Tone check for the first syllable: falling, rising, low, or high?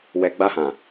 low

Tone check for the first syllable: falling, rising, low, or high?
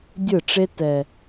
falling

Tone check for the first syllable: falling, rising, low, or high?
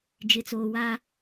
low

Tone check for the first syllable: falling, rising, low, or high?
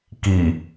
low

